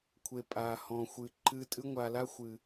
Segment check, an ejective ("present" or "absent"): present